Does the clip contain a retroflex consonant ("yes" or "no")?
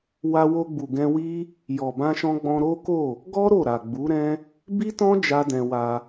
no